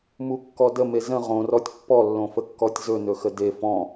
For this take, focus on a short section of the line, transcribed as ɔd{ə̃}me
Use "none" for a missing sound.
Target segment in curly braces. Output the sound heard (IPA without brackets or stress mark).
ə